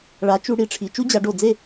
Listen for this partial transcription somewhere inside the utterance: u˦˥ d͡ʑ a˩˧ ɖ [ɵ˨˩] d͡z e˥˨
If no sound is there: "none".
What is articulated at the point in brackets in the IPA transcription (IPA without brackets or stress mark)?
o˨˩